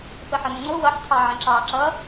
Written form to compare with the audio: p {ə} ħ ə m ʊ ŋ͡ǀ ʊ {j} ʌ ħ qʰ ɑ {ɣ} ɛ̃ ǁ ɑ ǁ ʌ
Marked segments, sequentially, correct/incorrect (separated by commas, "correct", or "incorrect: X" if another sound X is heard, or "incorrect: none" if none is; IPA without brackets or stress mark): correct, incorrect: w, incorrect: ʕ